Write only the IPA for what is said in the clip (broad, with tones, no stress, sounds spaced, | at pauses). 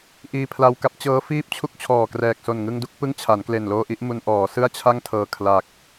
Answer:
ʔ iː˧ pʰ l a˧ w k a˦˥ p̚ t͡ɕ ɤː˦˥ f iː˥˩ p̚ t͡ɕʰ u˥˩ k̚ t͡ɕʰ ɔː˨˩ k r ɛː˨˩ k̚ s o˨˩ n ŋ ɯ˧ ŋ d u˥˩ k̚ p ɯ˥˩ ŋ t͡ɕʰ a˩˦ n k l e˨˩ n l oː˧ ʔ i˦˥ ʔ m u˧ n ʔ ɔː˩˦ s ɯ˥˩ a̯ t͡ɕʰ a˥˩ ŋ tʰ ɤː˨˩ kʰ l a˨˩ k̚